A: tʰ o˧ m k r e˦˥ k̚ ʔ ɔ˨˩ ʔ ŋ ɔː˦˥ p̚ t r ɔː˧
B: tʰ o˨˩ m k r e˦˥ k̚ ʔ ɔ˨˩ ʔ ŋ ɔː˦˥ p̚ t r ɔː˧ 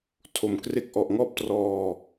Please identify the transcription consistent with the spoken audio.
B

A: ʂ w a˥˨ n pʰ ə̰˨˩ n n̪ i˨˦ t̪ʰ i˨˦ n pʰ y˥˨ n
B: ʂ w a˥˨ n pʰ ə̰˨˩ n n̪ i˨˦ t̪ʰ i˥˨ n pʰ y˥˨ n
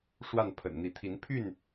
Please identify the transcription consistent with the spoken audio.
A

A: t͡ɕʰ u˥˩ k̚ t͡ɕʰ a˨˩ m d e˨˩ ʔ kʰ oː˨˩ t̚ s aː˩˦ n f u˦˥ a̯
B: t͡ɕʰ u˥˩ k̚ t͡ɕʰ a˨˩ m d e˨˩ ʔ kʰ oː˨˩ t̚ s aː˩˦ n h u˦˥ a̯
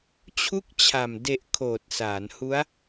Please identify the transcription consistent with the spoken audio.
B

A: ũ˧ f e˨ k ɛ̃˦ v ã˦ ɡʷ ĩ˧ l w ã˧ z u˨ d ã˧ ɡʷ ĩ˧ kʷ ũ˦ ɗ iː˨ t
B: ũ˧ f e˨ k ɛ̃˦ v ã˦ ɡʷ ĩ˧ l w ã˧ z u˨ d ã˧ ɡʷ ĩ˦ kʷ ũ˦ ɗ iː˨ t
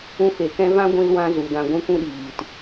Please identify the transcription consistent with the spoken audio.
B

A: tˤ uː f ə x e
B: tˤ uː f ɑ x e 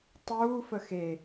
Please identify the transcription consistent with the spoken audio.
A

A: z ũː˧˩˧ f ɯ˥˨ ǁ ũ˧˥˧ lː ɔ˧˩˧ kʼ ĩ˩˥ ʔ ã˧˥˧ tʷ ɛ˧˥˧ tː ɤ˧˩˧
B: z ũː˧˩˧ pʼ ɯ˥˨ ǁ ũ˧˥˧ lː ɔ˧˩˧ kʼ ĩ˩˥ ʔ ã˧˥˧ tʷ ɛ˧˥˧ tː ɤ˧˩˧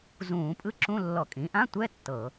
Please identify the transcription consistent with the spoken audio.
B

